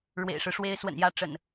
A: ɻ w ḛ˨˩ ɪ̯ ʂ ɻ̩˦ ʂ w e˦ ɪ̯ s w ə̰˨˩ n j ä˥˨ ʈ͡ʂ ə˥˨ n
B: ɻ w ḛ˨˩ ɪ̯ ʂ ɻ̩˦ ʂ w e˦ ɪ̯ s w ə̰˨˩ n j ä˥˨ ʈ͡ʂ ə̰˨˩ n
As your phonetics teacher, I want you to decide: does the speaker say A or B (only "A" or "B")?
B